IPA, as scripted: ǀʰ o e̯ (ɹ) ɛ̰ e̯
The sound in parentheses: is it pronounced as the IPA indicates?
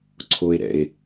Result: no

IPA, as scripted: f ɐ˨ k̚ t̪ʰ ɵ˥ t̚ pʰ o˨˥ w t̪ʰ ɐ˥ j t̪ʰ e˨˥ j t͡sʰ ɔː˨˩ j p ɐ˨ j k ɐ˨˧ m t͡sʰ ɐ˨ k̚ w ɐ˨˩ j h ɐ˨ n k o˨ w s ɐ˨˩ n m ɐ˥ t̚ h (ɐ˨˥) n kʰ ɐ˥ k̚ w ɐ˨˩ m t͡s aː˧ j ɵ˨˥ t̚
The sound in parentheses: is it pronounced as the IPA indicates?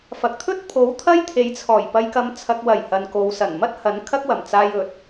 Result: yes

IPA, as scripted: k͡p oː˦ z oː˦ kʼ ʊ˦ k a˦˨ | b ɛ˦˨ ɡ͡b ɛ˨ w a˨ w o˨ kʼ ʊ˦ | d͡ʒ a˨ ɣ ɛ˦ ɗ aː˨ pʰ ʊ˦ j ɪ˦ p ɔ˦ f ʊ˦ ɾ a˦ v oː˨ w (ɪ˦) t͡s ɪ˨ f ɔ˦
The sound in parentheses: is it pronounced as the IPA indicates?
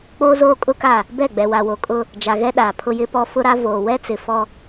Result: no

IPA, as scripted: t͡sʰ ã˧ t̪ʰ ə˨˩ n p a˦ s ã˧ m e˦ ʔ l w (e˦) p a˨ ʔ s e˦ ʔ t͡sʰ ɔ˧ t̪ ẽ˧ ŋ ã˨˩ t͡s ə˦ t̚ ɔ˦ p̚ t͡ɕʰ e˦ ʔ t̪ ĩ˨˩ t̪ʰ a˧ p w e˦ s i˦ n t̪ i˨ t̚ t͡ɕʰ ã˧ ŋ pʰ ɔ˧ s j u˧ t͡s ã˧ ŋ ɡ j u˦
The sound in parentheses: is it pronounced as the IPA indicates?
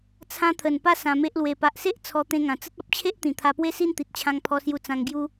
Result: no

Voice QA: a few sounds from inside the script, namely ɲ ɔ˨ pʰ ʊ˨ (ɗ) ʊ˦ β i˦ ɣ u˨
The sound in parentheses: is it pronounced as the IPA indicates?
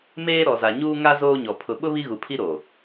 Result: no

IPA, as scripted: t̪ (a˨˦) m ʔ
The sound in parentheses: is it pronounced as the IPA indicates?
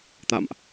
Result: no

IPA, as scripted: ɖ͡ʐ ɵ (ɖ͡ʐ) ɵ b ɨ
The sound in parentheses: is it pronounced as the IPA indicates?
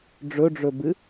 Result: yes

